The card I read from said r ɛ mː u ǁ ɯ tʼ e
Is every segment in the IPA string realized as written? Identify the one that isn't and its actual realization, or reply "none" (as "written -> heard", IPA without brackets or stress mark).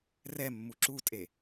ɯ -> u